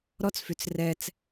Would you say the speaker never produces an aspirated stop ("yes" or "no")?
yes